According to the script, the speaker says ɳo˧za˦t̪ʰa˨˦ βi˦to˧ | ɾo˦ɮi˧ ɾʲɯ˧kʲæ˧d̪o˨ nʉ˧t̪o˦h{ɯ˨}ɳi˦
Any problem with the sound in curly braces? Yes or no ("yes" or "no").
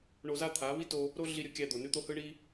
yes